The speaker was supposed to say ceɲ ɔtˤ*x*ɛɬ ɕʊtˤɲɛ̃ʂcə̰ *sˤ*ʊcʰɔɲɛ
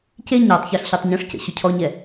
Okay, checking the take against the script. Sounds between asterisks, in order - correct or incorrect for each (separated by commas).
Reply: incorrect, incorrect